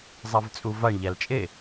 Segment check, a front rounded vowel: absent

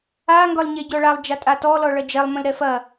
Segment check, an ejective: present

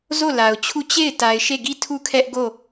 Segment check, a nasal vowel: absent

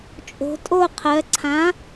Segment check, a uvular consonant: present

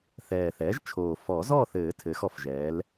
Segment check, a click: absent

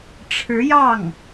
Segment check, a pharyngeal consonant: absent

